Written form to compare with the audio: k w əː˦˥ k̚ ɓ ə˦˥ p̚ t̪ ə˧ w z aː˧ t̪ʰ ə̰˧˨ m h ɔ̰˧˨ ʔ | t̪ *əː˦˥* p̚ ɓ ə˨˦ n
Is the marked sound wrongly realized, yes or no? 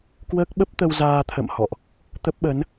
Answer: yes